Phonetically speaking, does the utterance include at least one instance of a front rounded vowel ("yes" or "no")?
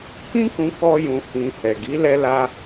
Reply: no